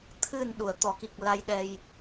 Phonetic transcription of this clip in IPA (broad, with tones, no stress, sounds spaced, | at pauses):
t̪ʰ ɨ˨˩ n ɗ u˨˩˨ ə̯ t̪ ɔ˨˩˨ k i˨˩ k̚ l a˧ j ɗ ɛ˧ j